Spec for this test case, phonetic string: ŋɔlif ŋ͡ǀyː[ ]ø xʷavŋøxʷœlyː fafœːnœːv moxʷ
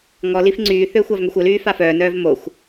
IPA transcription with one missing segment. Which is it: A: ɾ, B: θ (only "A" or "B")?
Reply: B